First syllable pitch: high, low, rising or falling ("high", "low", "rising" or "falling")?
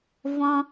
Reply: high